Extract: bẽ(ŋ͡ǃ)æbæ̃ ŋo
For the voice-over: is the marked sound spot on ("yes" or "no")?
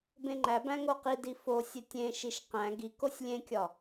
yes